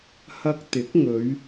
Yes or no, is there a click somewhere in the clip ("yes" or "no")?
no